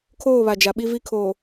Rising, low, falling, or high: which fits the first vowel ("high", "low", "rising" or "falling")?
falling